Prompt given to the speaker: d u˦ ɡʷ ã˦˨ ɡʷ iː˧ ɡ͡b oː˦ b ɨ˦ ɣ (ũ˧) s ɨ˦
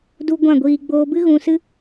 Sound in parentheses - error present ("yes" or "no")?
no